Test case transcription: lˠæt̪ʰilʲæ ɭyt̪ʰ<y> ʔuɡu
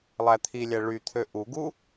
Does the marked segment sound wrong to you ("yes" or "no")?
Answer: yes